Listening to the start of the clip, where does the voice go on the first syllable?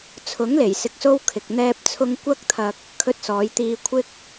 rising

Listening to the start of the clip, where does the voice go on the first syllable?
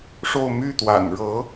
falling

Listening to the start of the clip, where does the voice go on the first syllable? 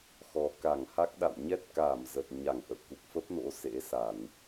low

